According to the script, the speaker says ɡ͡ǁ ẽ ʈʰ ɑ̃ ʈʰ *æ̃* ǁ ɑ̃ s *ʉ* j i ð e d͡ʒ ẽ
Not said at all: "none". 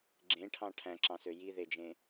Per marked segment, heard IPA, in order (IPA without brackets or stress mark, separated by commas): æ̃, ø